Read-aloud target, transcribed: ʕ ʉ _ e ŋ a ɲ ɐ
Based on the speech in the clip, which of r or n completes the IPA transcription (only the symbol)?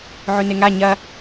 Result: n